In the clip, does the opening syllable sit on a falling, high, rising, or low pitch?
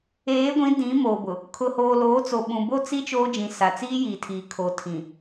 rising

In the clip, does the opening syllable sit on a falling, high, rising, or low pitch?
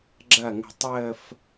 falling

